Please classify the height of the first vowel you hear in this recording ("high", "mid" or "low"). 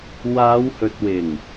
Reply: low